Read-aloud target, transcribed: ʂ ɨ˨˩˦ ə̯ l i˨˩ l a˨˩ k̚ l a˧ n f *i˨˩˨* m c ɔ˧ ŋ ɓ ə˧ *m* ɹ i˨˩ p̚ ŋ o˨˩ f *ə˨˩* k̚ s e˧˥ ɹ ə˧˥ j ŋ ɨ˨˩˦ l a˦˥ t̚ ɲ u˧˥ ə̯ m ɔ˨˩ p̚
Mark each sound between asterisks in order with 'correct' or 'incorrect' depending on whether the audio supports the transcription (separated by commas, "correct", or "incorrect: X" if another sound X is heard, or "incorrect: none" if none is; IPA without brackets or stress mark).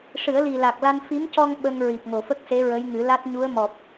incorrect: i˧˥, incorrect: ŋ, incorrect: ə˦˥